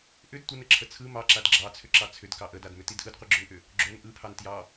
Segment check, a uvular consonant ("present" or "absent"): present